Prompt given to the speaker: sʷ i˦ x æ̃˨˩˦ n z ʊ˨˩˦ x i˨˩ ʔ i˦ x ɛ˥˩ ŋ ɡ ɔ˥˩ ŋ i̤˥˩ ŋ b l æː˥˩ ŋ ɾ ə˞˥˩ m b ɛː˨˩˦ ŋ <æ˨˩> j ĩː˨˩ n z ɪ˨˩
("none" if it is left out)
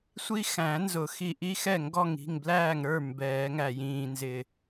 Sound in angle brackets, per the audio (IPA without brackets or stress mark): æ˨˩